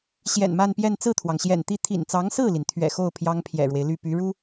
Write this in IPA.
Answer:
ɕ j ɛ̰˨˩ n m a˥˧ n p j ɛ˥˧ n t͡s ɹ̩˥˩ t̪ʰ w ɑ˩ ŋ ɕ j ɛ̰˨˩ n t̪ i˥˩ t̪ʰ ḭ˨˩ n t͡s ɑ˧˥ ŋ s ɹ̩˥˩ l i˩ n t̪ʰ ɥ ɛ̰˨˩ x o˥˩ ʊ̯ pʰ j ɑ˥ ŋ pʰ j ɛ̰˨˩ ɻ w e˦ ɪ̯ l y˥˩ p y˧˥ ɻ u˥

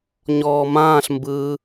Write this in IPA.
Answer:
ɲ ɔː m ãː ɬ m b ɯː

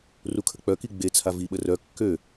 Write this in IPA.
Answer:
r u kʰ ə k͡p œ k i ɡ͡b e t͡sʰ a v i ɓ ə r œ kː ø

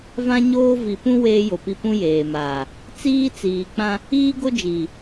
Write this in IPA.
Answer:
v ã˦ ɲ oː˦ v i˨ p ũ˦ w eː˦ j o˨ p i˦ p ũ˦ j eː˨ m aː˨ | t͡s iː˦ t͡s iː˨ k͡p ã˦ | iː˦ ɡ o˦ d͡ʒ iː˨

